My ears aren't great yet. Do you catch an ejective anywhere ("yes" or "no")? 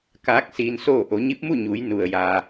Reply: no